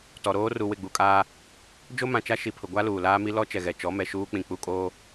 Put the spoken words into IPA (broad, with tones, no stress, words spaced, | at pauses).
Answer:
tɔ˨ ɾoː˦ru˨ wɪ˦˨ɡ͡bu˦˨kʼaː˦ | d͡ʒo˦mã˨t͡ʃa˦ ʃi˨pʰʊ˨ɡʷa˦ luː˨laː˦mi˦ lɔ˦ t͡ʃɛ˨ɣɛ˨ t͡ʃɔ˨˦mɛ˨ʃuː˦ k͡pĩ˨k͡pu˦˨ kʼoː˦